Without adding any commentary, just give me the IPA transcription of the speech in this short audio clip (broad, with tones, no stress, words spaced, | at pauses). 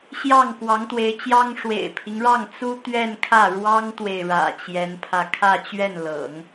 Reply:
ɕjɑ˥˩ŋkwɑ˧˥ŋt̪we˧˥ɪ̯t͡ɕjɑ˥ŋ ʂwḛ˨˩ɪ̯pʰi˦ŋɻɑ˥˩ŋ t͡su˥ t̪ɥɛ˥˧nkʰä˥˩ ɻwɑ˥ŋt̪we˨ɪ̯ ɻä̰˨˩t͡ɕjɛ˧˥npʰä˧ kʰä˥˧ t͡ɕɥɛ˥˩nlɤ̰˨˩˦ŋ